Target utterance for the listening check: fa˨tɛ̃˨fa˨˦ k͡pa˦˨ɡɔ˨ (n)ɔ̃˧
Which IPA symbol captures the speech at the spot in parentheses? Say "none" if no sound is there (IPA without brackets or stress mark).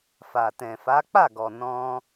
n